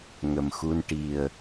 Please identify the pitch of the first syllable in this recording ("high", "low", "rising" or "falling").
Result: low